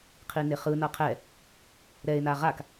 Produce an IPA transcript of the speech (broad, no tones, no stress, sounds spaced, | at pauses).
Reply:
qʰ i n e χ ɯ n ʌ qʰ ɛ | ɾ ɛ e̯ n a ʁ a k